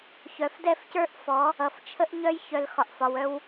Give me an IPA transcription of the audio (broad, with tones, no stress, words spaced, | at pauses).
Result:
çœ˨f dɛ˦˨fcə˞˦ʔfɔ˨˦ | ʌ˨f t͡ʃʰə˦ʔɲœ˦j çœ˨l xɒ˨ʔfɒ˨wœ˦w